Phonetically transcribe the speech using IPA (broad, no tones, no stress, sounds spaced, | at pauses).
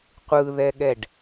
qʷ ɯ ð ɛ ɠ ɛ ɖ